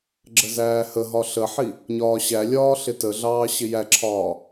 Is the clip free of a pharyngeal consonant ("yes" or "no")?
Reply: no